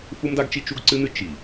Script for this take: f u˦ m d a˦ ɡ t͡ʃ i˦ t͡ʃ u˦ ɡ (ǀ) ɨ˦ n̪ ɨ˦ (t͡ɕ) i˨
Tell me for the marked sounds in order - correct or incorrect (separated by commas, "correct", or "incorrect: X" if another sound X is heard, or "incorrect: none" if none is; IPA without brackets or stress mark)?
correct, incorrect: t͡ʃ